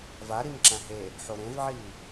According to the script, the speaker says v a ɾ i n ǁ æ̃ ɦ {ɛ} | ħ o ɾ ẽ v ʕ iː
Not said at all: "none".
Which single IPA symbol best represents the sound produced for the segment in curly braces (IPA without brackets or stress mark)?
e